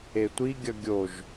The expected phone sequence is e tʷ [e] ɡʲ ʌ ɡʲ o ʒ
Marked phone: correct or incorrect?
incorrect